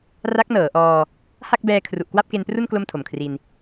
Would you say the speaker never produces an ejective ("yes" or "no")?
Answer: yes